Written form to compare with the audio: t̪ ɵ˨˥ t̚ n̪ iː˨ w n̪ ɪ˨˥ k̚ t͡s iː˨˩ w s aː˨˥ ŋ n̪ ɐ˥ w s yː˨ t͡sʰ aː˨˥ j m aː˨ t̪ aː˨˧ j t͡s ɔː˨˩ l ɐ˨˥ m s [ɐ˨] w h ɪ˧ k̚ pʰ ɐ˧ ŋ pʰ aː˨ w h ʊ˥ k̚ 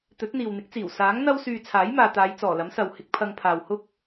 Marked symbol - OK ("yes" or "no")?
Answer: yes